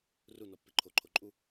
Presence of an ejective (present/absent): present